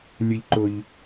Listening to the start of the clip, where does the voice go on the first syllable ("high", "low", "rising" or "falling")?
low